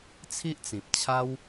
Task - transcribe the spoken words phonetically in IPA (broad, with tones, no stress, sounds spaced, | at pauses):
t͡sʰ i˦ ʔ t͡s ĩ˨ p̚ t͡ɕʰ a˦ w